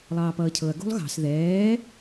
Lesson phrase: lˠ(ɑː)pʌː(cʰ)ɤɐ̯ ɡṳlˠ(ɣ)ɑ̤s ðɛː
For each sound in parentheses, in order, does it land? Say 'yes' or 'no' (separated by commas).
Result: yes, yes, yes